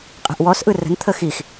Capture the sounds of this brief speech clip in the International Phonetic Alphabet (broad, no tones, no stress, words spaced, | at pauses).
qʼɛ̤ʔwɔsʔɯ rə̤nt̪ʰə xix